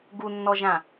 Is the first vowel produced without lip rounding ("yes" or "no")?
no